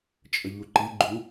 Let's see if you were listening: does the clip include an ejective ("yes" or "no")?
yes